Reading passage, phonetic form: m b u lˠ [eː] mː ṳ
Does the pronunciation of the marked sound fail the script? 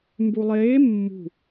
no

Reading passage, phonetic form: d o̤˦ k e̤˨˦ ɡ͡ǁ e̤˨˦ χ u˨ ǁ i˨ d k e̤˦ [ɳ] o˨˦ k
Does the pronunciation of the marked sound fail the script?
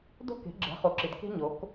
yes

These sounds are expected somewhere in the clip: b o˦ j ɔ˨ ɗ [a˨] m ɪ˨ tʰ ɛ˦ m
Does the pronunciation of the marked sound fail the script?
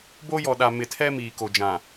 no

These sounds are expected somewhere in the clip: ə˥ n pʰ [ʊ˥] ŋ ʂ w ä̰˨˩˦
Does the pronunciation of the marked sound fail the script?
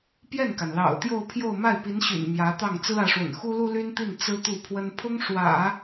no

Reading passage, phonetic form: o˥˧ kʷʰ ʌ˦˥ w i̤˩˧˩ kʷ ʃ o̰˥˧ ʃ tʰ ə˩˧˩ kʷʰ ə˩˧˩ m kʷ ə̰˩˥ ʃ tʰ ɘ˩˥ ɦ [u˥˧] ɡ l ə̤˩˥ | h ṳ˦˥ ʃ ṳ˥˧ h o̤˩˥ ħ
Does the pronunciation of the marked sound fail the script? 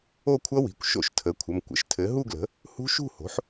no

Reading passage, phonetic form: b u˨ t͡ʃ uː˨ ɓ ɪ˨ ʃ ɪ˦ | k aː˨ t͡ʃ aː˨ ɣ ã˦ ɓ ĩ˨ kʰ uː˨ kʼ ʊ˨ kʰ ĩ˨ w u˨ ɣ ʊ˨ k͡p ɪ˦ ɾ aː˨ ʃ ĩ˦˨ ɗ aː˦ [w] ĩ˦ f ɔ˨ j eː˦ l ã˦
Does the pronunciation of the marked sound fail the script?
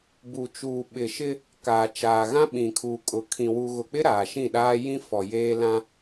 yes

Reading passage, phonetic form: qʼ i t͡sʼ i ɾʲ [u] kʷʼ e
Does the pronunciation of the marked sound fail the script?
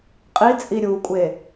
no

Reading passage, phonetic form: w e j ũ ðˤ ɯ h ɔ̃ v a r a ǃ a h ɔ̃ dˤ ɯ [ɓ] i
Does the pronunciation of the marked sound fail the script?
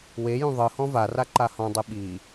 no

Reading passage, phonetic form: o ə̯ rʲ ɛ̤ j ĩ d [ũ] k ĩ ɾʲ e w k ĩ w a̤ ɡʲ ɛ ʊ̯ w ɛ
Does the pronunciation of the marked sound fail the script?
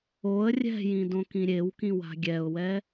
yes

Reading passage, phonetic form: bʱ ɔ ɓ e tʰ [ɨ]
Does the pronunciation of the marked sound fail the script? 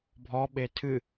no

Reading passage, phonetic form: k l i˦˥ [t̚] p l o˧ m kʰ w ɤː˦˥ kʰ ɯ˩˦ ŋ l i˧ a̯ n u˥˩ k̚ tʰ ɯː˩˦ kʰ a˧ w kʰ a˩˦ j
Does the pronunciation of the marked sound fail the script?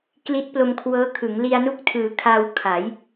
no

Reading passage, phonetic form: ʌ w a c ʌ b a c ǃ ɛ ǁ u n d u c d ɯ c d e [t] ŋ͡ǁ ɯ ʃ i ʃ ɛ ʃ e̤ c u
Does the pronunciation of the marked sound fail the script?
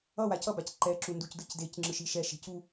yes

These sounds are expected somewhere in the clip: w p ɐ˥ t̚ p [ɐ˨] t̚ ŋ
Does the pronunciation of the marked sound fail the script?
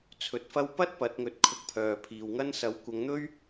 yes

